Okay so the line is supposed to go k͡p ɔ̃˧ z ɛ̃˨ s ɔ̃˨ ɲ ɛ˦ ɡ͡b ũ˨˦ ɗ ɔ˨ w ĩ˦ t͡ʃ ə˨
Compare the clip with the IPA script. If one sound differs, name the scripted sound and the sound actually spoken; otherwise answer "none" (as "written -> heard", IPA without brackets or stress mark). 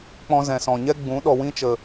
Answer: none